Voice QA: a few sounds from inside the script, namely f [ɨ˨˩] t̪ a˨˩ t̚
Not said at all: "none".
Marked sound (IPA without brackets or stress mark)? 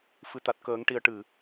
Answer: ɨ˨˩˨